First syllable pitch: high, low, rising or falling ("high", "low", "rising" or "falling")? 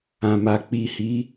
low